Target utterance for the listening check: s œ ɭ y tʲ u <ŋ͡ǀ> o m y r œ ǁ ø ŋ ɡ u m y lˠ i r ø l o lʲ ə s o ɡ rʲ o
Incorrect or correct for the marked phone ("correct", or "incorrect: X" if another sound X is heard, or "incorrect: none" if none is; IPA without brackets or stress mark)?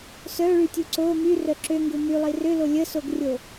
incorrect: ǀ